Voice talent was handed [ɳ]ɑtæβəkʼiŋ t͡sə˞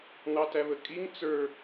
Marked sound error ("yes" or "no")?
yes